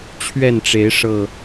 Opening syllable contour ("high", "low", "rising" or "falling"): falling